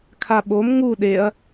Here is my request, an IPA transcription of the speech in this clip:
kʰ a ɓ o m ŋ u ɗ e ɐ̯

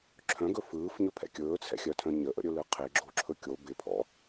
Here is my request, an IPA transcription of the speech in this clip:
ǁʰ œ̃ ɡ ɵ f ɯː f ɲ ɵ pʰ ɛ̰ kʲ ɵː t͡sʰ ɛ̰ xʲ œ tʰ œ̃ ɲ ə ʔ ə̰ ɾʲ ɵ l ɯ qʰ ɪ ɡ͡ǁ o ǁʰ ɵ kʲ o b ɪ pʰ ɔ̰

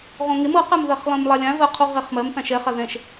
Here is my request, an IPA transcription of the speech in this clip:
ʁ õ ŋ e m ɤ q ɛ m ð ɐ χ lˠ ĩ m lˠ a lʲ ã v ɜ qʰ u ʁ e χ m ɜ m θ ã ʃ ɛ χ a ð ɛ̃ ʃ

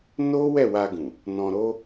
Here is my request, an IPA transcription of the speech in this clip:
n o˦ w ɛ˦˨ w a˧ ɡ ũ˨ | n ɔ̃˧ ɾ o˦

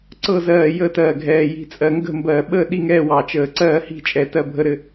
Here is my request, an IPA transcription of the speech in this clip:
ǀ ɤ˦˨ z ɜː˨˩ j əː˦˨ t ɜː˨˩ ɡʱ ɛː˨˩ j i̤˨˩ t͡sʼ ɜ˨˩ ŋ ɡ ə̤˦˨ m b ɜː˨˩ ɓ əː˦˨ ɗ i˦˨ ŋ ɛː˦˨ w ɑ˨˩ t͡ʃ əː˨˩ ǀ ɜː˦˨ h i̤˦˨ t͡ʃʼ ɛ˨˩ t ɜ˦˨ bʱ ə˦˨ ɾ ɘ˦˨

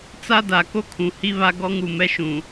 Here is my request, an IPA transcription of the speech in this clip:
t͡s a˦ d a˨ k o˦ kʰ ũ˨ h i˦ β a˦ ɡ ɔ˦ ŋ u˨ m ɛ˦ ʃ ũ˨

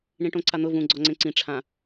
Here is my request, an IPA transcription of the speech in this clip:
ɳ ĩ ʈ õ ǀ a n̪ ʊ v ũ ɡ͡ǀ ɔ ŋ͡ǀ ẽ ǀ ĩ ʈ͡ʂʰ ã

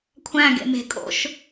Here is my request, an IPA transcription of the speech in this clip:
kʷʰ æ̃ ɡ ḛ m e̤ kʼ o̰ ʃ

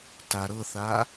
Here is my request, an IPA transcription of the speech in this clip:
t a ɾ ɤ θ a

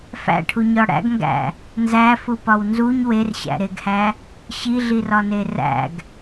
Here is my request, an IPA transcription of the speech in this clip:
f æ̰ ʈʰ u ɲ ɒ ɽ æ̰ ɡ ŋ ɡ æ̰ | n z æ f u p ɒ w n z u ɲ w e r ɕ æ̰ ɾ e ɡ h æ | ɕ i ɮ i r ɒ n e r æ̰ ɡ

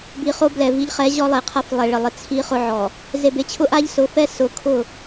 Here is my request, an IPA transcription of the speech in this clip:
b i˨ χ o˦ b l ɛ˨ v i˦ ʎ χ ɛ˨˦ ʑ ɔ˦ lˠ e˨ qʰ a˦ f lˠ ɛ˨ ɭ ɪ˨ lˠ ɪ˦ t͡sʰ i˦ χ ʊ˦ ʕ ɔ˨ | z e˨ b e˨ t͡ɕʰ ʊ˦ ʔ a˦ ʎ s ʊ˨˦ f ɛ˦ s ʊ˨˦ kʰ ʊ˦˨

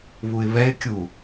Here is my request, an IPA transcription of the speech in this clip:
β u ɪ̯ β ɛ ɪ̯ kʲ u

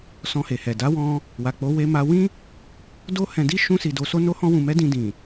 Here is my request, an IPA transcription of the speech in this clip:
s ɔ̃˧ h e˨ h ɛ˨ d a˨˦ w ɔ̃˧ | w a˨ k͡p o˨˦ w e˧ m a˧ w ĩ˦ | d o˦ h ɛ̃˧ d i˦ ʃ ũ˧ s i˨ d o˧ s o˦ n o˦ h ɔ̃˦ w ũ˧ m ɛ˦ d ĩ˧ d ĩ˨

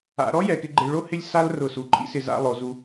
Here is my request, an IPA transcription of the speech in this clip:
a̰˩˧ ɾ ɔ˥ j ɛ˩˧ k ɪ˧ ɡ͡ǃ e˧ ɭ o˥ h ɪ˥˧ lʲ s a˥ l r ʊ˧˩ s u˩˧ ǃʼ ḭ˥ s ɪ˧ z a̰˥˧ lˠ o˩˧ z u˧

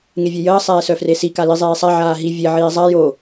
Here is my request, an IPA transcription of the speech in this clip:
ŋ e vʲ e j əː sˤ ɛː s œ f r e s i k a l i zˤ eː sˤ a ʕ aː ɦ i vʲ e ʕ iː zˤ a j o

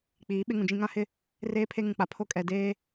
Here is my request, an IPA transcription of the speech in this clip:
k͡p iː˨˦ ɓ ɪ˦ ŋ ũ˨ d͡ʒ ĩ˦ ŋ ã˦ h ɪ˦ | r eː˦ pʰ e˦ ŋ ũ˨ k͡p a˨ pʰ o˦ kʼ ɛ˨ d eː˦

